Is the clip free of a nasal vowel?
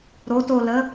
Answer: yes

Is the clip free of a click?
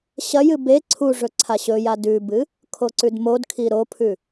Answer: no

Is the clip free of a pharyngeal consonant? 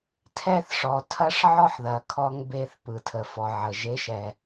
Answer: no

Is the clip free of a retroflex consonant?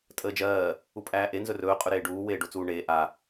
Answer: no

